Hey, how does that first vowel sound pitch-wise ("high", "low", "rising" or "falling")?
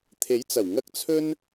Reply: rising